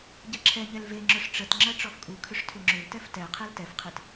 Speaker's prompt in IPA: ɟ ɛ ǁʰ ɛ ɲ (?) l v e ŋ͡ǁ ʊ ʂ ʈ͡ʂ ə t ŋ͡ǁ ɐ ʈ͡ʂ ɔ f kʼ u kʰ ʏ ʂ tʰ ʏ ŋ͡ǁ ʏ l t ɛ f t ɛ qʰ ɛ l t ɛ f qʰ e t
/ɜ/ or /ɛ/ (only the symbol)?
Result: ɛ